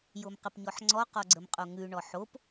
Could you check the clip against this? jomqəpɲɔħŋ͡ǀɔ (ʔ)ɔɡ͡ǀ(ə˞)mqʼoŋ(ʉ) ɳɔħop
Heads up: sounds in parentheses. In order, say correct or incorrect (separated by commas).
incorrect, incorrect, correct